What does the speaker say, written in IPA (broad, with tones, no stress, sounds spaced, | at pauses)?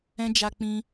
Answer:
ɛ̃˦ d͡ʒ a˧ k͡p ĩ˧